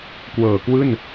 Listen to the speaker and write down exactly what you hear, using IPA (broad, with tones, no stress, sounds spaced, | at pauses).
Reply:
k w ɤː˨˩ k w ɯː˥˩ n